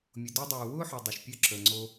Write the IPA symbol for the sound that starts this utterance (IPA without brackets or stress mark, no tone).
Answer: mʲ